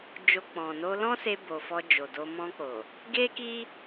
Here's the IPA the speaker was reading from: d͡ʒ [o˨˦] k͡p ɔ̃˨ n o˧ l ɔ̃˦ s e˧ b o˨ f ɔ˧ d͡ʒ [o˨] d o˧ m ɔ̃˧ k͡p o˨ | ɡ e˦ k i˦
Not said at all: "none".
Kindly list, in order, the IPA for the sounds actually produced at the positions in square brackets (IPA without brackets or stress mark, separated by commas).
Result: o˧, o˨